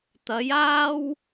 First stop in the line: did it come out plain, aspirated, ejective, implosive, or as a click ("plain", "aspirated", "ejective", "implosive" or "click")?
plain